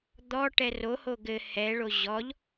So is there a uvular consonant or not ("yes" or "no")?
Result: no